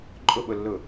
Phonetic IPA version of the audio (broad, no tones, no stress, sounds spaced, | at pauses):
ǃʼ ʊ ɓ ʊ lː ʊ